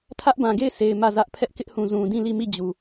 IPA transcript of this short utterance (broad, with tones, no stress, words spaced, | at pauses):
tʰä˦ʔbã˨ɡe˦˨ɪ̯sʰe˨ɪ̯ mä˦˨zä˦ʔ pʰɛ˦ʔkɪ˦ʔhũ˨ zũ˨dĩ˦˨li˦˨ mi˦˨d͡ʑu˨